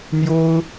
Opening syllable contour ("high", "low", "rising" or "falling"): high